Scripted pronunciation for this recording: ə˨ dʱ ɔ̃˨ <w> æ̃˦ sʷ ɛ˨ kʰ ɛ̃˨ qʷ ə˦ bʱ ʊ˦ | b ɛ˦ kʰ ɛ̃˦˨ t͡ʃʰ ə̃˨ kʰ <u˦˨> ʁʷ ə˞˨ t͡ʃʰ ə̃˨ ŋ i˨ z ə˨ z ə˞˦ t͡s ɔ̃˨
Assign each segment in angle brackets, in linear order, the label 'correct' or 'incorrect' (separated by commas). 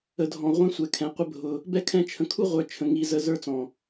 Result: incorrect, incorrect